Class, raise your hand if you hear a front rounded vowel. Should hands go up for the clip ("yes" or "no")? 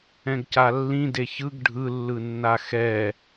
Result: no